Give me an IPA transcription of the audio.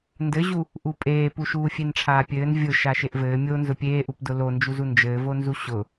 ndɘʑu | ʔupʼeːpu ʃuːfʲenʈ͡ʂʰaːpʲɘːn vʲʊ ʃaʃeʔvɘː mʲo nzʊpʲeːʔupdʊ lond͡ʒuzu nd͡ʒɘːvonzu ɕʊ

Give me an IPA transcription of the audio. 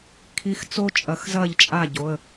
kʰi˨˥xt͡so˦ t͡ʃʼɐ˨˩˦xzɐː˥˩ʎt͡ʃʼa˥˩ɟo˩˧˩ə̯

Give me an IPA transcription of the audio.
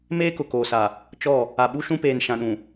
meː˦kʊ˨koː˨sa˨ | t͡ʃɔ˦˨ | a˨ɓu˦ʃũ˦peː˨n ʃã˨ɗũ˨

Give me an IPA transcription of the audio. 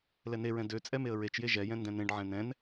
lɛneɹɛ̃ dø t͡sʼɛmeə̯ɹet͡ʃje ʒɛjɛ̃ ndɛ̃nẽɖʕɛ̃ nɛ̃n

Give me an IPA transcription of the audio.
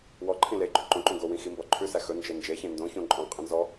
wɔ ǃʰĩleɡ͡ǃʉ ǃõǃũ ɡowĩ ximbɔǃʰʉsæ xɵnd͡ʒe nd͡ʒeçẽ ndõçõ ǃʼɔ̃qʼĩ nzɔ

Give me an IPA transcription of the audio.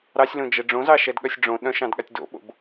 ɾɑsʲlõd͡ʒɛ ɖ͡ʐõzɑʃɛdɠœsʲ ɖ͡ʐõ ɗœ̃ʃɑ̃dɠatʲ do̰ɓo̰b

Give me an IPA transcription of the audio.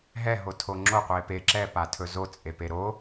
ɦɛɦo tʰoŋ͡ǁo qʷepe ǁɛpatʰɵ zot͡sʼepe ɾo

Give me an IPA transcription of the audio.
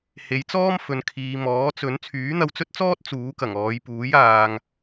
he˨˧jt͡sɔː˥mfɵ˨˧n kʰiː˨ mɔː˨˥t͡sɵ˨˥n t͡sʰyː˨˥n̪ɐ˧wt͡sɵ˥t̚t͡sɔː˥t̚ t͡suː˨˥kɐ˨˩ŋɔː˨˧j puː˨˥jaː˨ŋ

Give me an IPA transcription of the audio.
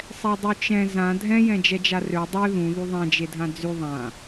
sˤɛdˤyt͡ʃɛ̃ zã dʱɛ̃ jɛ̃d͡ʒɛd͡ʒarø dˤø ðũ ðyðˤɛ̃ d͡ʒedʱãd͡zy ðˤã

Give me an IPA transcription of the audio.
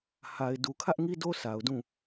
ha˨ɪ̯ du˨kʰä˦ʔŋi˦do˦ sa˨ʊ̯dũ˦˨

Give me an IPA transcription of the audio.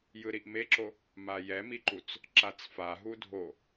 jɯɾiʔmeǁo | majɛmiǃut͡s | ǁat͡sfa ɦudʱo

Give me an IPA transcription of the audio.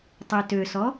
tˤøtøsɔ

